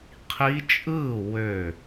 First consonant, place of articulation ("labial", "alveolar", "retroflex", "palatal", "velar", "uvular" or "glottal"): uvular